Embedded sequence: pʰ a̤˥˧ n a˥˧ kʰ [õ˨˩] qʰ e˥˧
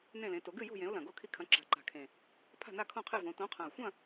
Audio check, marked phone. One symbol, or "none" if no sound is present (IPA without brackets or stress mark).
õ˥˧